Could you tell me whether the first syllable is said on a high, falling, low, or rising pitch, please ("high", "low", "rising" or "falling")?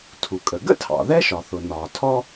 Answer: low